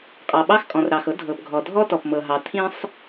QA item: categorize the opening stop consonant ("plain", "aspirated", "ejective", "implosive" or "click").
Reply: ejective